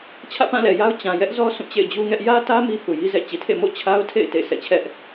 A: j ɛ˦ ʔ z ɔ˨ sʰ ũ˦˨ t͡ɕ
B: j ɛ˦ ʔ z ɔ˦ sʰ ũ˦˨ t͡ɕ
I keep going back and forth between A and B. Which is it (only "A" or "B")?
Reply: B